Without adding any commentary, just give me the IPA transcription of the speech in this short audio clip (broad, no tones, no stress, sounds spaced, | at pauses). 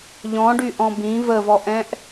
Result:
ʎ ɔ̃ ɖ y ʔ ɔ̃ b ĩ v ə v ɔ ʔ ɛ̃ ʔ